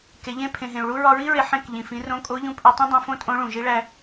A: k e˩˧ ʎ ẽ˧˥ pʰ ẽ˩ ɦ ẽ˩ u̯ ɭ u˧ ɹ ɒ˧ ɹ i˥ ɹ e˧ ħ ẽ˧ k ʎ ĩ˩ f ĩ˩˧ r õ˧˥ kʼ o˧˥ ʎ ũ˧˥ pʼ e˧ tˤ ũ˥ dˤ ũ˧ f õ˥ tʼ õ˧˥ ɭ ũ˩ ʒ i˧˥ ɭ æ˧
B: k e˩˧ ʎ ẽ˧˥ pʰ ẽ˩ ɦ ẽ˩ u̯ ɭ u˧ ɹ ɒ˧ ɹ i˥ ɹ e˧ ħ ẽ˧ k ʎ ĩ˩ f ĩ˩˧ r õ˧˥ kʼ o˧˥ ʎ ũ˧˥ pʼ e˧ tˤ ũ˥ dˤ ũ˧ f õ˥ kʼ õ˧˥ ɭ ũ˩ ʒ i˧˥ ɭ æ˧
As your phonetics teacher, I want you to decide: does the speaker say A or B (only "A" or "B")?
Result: A